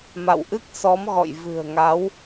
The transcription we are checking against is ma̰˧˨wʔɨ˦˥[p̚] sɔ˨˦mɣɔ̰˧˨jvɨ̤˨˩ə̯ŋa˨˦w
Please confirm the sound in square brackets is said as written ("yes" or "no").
no